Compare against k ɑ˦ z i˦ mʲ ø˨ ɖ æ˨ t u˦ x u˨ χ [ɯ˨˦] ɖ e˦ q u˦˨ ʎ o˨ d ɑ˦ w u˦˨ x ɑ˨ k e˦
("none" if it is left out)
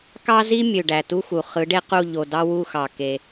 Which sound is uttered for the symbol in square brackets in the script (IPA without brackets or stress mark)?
ɯ˨˦